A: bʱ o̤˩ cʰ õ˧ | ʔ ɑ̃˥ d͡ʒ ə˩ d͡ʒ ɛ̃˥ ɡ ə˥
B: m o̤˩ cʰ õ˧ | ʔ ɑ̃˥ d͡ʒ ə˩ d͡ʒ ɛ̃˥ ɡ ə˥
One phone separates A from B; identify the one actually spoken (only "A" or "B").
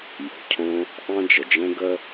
B